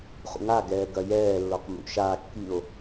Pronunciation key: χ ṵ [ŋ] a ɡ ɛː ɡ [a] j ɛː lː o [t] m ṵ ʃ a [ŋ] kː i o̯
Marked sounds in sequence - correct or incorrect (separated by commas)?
correct, incorrect, incorrect, incorrect